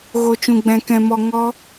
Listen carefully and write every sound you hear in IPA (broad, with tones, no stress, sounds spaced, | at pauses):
ɣ o˧ t͡ʃ ũ˧ ɡ͡b ɛ̃˧ k ɛ̃˧ m ɔ˧ ŋ ɔ˦